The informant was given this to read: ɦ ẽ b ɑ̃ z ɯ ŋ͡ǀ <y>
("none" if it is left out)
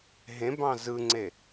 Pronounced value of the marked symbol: e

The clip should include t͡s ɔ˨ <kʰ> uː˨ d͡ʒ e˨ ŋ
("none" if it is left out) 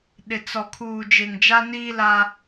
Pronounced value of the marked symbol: kʰ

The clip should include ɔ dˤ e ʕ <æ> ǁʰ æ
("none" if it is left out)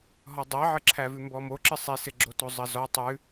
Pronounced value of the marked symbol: ə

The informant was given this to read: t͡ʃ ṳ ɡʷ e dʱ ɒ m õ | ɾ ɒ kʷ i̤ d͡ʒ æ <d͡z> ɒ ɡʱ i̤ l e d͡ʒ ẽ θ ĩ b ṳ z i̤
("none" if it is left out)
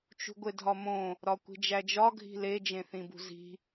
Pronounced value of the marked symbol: d͡ʒ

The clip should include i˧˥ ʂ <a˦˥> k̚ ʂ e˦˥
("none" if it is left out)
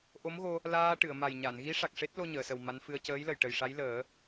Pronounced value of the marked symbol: a˨˩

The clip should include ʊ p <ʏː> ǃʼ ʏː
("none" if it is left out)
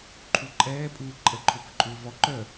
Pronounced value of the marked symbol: ʏ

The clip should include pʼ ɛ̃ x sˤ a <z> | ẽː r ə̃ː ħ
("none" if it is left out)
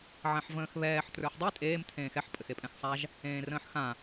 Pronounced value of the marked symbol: ʒ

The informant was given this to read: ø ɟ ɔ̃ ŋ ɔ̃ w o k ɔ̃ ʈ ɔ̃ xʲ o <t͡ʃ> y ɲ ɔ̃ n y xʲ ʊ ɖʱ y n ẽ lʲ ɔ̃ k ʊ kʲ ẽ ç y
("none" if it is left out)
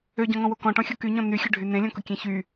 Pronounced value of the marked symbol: k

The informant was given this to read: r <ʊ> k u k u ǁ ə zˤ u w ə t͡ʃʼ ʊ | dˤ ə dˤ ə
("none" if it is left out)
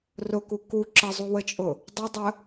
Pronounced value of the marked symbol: ʊ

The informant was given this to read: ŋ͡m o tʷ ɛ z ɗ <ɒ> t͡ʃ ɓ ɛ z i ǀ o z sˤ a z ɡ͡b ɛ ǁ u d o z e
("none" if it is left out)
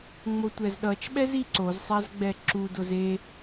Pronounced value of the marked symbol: ʌ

